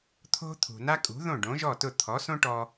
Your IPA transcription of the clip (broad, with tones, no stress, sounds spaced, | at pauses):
t̪ʰ o̤˥ t̪ʰ ṳ˩ n a˥ kʼ ṳ˩˥ ð õ˥˩ ɖ õ˩˥ ʒ ɔ˥˩ t ʊ˥˩ t̪ʰ ɔ˩˥ s õ˥ ʈ ɔ˧